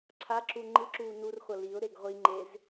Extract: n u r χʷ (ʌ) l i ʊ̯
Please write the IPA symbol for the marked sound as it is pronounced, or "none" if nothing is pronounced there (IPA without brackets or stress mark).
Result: ʌ